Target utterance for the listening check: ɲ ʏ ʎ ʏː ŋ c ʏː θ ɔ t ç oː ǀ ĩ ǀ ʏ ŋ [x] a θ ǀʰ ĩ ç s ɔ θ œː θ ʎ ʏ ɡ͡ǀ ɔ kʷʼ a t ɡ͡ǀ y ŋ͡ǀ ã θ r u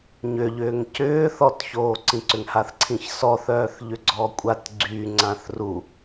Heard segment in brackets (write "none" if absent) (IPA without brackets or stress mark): h